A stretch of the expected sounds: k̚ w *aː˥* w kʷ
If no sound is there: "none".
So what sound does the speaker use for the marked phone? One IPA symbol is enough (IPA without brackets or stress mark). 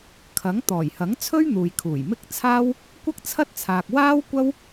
aː˥